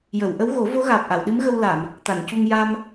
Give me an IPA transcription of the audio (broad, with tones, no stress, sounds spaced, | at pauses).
j ə˨˩˨ w ʔ ə˧˥ w ɣ o˨˩˦ v o˧˥ ɣ aː˨˩ p̚ ʔ a˨˩˨ w ɗ ɨ˧˥ m ɣ ə˧ w l a˨˩˨ m | t̪ a˨˩˨ n c u˧ ŋ j a˧ m